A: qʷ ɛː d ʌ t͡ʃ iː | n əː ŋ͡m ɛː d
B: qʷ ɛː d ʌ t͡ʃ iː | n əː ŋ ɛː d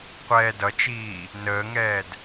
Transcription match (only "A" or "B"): B